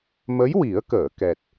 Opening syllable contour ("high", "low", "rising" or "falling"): rising